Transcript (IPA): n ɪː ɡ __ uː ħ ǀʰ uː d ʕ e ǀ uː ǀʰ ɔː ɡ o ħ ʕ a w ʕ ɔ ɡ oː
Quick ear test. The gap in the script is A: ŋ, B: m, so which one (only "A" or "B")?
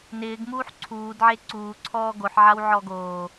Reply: B